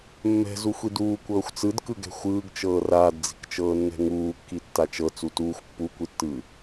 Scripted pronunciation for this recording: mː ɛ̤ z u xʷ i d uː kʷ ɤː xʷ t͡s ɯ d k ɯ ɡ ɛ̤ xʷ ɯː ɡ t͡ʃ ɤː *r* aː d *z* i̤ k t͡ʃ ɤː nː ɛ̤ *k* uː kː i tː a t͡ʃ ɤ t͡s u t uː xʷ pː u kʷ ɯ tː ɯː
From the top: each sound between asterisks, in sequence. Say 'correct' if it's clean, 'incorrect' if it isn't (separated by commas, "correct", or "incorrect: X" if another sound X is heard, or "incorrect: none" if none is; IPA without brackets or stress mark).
correct, incorrect: d͡z, incorrect: ŋ